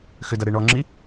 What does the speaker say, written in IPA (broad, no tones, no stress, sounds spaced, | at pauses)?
x ʏ d ɐ ɾ e ɳ ɔ ŋ͡ǁ i